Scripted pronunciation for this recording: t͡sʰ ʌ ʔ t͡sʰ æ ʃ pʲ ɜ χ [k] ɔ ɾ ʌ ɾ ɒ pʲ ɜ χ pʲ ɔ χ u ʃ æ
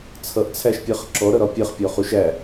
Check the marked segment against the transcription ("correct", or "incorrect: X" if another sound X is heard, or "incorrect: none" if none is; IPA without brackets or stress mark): incorrect: ǁ